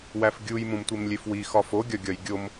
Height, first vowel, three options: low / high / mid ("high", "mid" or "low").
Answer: low